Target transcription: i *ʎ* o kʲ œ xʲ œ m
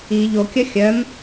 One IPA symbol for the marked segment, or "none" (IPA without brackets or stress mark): ʎ